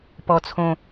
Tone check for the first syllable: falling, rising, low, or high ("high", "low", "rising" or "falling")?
low